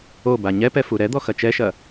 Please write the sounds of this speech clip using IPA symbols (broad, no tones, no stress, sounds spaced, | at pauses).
o b a ɲ ɛ p ɛ f u ɾ ɛ d̪ ɔ x ɐ t͡ʃ ɛ ʃ ɐ